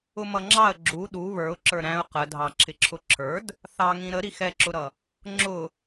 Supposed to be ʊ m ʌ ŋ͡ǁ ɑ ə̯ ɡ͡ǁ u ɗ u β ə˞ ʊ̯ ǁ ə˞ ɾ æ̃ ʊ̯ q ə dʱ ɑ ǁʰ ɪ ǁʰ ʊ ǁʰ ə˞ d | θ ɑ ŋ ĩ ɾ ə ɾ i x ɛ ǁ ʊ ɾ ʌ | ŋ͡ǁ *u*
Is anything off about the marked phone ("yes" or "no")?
yes